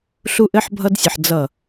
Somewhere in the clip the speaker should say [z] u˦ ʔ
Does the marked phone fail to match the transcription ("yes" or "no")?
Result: yes